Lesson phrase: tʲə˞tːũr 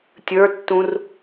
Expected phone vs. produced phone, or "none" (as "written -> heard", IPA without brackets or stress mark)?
none